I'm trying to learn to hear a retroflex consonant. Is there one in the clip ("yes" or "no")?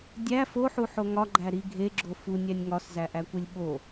no